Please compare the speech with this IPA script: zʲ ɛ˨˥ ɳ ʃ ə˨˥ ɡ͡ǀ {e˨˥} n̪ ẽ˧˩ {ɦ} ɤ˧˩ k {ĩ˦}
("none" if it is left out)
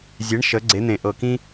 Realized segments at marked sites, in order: e˨˥, ʔ, ĩ˦

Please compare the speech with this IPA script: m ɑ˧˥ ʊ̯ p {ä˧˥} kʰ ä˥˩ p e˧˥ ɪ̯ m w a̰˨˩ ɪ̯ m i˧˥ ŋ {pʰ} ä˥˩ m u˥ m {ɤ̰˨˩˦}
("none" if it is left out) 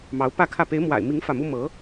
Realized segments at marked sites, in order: ä˥˧, f, ɤ˧˥

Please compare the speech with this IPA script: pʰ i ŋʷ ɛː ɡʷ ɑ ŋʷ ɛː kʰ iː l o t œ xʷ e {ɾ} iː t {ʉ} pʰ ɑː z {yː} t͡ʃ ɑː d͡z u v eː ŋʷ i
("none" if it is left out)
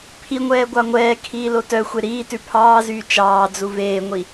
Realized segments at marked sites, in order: ɾ, ʉ, yː

